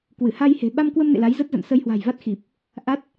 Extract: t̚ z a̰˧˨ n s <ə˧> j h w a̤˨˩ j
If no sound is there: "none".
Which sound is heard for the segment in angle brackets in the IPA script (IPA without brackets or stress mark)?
ə˧